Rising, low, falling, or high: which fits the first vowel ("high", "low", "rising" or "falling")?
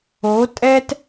rising